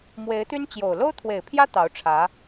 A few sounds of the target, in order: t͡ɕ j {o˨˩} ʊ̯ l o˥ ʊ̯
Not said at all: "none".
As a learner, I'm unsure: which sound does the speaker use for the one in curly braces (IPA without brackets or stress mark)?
o˨˩